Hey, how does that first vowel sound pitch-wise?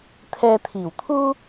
low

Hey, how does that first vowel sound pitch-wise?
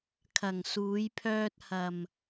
low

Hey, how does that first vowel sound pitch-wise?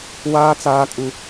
high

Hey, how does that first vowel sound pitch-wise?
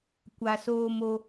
low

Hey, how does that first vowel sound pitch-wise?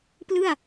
falling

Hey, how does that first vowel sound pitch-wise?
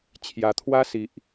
low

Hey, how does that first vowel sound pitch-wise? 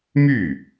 falling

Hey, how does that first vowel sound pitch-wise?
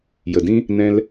low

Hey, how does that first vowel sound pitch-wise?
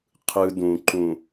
high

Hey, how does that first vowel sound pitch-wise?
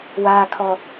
low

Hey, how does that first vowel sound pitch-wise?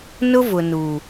high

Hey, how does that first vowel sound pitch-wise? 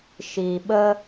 low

